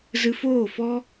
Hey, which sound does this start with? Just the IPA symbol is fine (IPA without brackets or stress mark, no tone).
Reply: z